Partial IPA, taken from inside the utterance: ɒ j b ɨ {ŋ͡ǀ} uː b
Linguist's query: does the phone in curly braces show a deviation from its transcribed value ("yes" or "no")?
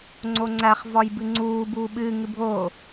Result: no